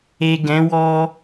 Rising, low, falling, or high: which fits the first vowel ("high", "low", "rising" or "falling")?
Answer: low